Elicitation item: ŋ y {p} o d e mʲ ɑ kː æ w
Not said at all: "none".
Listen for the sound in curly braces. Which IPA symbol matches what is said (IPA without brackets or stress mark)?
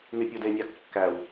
pʲ